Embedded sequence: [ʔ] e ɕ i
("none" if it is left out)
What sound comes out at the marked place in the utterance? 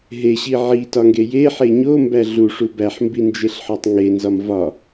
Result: ɦ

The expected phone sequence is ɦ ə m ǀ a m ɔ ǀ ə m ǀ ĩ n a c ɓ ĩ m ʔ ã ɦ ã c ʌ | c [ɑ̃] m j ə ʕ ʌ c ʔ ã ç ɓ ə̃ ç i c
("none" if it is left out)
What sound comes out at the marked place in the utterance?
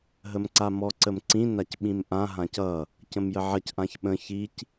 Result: ə̃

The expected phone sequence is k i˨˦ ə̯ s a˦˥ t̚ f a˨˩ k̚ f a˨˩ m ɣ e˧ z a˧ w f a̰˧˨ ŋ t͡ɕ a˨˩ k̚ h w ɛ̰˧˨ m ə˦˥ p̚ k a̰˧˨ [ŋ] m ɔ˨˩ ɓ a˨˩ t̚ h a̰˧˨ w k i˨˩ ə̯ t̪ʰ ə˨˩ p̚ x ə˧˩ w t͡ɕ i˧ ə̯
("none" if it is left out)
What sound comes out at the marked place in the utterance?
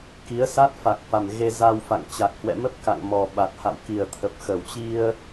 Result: ŋ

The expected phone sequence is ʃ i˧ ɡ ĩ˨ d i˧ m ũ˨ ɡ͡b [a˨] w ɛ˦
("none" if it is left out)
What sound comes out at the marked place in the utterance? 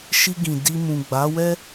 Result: a˨˦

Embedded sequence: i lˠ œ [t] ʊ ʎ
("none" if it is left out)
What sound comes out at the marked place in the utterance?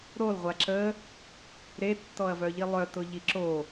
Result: t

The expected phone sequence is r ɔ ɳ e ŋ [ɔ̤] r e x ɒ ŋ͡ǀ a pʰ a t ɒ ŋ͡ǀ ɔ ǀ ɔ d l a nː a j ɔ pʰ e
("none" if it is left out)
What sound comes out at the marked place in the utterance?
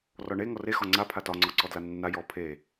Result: ɔ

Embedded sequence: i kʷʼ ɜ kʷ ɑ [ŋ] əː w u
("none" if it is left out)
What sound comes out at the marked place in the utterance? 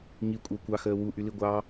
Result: x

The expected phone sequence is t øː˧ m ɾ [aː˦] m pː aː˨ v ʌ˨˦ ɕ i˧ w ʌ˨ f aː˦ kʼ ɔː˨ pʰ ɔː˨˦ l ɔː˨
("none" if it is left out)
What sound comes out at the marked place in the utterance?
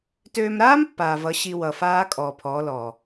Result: aː˦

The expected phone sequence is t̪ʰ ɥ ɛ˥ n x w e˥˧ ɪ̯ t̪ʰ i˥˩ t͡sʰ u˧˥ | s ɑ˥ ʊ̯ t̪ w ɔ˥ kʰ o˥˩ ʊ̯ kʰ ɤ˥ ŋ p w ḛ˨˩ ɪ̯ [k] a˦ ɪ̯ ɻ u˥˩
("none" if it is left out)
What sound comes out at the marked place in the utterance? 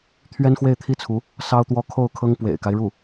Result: k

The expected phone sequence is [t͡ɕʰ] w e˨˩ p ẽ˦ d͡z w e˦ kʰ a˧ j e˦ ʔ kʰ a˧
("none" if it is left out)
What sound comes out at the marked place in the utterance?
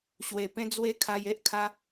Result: ɕ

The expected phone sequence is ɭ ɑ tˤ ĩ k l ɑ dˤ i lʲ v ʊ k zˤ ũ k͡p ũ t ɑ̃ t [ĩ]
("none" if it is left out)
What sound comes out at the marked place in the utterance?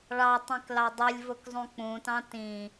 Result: ĩ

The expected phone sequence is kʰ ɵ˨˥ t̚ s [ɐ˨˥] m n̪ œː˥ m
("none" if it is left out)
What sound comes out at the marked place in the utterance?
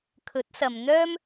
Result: ɐ˨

